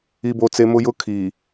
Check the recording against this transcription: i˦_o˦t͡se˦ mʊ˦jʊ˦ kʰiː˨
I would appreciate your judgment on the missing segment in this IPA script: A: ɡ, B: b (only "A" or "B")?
B